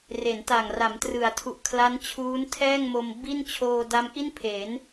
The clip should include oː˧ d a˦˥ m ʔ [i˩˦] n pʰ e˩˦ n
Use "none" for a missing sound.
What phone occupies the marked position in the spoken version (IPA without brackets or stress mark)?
i˥˩